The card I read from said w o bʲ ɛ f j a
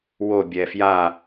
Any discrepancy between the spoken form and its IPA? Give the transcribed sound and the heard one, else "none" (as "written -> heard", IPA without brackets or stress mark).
none